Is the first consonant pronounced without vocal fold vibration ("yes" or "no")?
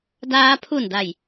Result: no